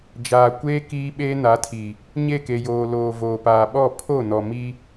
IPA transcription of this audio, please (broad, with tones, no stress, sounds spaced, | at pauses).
d͡ʒ aː˨ kʷ eː˦ k iː˦ ɓ eː˦ n a˨˦ tʰ i˨ | ɲ e˦˨ k e˨ j oː˨ l oː˨ v oː˨ p aː˨ ɓ ɔ˦˨ pʰ o˦˨ n ɔ˨ m i˦